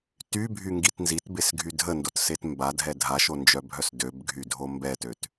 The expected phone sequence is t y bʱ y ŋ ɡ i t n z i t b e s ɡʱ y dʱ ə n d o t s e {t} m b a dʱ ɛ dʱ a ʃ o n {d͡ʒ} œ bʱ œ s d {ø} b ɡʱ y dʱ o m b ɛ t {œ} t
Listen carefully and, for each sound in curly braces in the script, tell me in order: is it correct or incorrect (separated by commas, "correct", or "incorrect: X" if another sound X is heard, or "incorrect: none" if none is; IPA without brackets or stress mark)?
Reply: correct, correct, correct, incorrect: ø